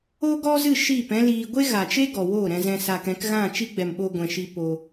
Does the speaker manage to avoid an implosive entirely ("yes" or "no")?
no